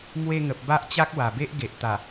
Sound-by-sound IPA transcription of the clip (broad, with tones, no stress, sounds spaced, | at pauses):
m w e˥˧ ŋ ə˨ p̚ b a˦ ʔ t͡ɕ a˦ k̚ w a˨˩ b e˦ ʔ ɡ e˨ ʔ t̪ a˨˩